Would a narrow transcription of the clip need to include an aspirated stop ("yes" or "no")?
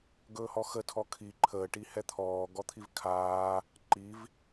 yes